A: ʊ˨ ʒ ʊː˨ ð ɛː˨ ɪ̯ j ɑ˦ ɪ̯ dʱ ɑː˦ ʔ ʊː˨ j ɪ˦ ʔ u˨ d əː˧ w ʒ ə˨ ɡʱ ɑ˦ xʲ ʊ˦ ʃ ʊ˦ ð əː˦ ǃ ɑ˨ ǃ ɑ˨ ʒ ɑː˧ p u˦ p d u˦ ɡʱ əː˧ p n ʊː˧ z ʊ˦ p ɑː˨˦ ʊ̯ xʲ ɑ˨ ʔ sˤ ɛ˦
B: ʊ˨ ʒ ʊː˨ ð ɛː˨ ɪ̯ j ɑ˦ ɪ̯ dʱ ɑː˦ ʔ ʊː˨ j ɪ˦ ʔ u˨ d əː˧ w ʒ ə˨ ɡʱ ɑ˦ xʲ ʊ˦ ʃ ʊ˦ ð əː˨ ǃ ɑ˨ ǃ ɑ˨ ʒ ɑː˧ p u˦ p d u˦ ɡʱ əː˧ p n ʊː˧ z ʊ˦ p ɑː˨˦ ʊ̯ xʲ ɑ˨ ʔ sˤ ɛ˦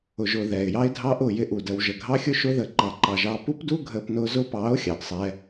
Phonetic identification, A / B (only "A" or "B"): B